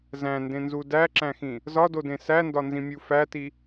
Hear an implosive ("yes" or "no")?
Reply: no